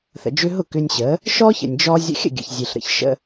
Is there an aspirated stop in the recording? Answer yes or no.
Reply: no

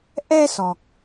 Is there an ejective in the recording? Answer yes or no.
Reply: no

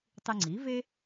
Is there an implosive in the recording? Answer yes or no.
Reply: no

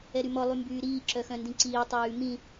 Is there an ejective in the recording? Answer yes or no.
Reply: no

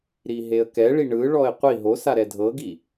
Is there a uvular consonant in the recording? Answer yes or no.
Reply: yes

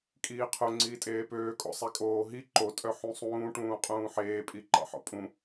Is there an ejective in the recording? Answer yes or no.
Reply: yes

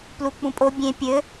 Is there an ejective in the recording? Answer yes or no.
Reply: yes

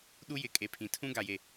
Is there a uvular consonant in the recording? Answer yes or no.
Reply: no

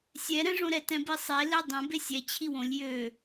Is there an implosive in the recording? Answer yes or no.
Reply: no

